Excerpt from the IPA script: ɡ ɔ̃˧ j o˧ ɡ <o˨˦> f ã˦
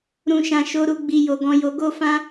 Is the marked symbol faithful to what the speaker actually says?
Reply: no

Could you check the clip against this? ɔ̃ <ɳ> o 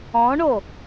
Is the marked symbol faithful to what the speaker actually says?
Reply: yes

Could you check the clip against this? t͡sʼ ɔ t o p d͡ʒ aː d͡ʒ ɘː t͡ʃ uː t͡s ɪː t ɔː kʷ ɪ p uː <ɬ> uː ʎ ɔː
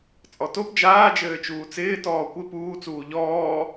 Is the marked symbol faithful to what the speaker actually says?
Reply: no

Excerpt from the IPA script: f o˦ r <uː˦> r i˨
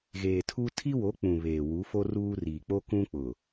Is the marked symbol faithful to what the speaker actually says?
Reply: yes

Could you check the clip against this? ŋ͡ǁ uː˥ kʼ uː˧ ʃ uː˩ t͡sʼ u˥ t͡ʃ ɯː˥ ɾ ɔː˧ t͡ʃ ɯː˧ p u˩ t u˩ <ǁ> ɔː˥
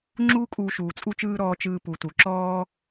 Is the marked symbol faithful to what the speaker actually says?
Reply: yes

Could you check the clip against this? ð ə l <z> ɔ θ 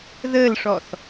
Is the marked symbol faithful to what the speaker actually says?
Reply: no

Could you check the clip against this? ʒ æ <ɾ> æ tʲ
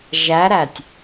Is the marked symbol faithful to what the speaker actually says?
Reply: yes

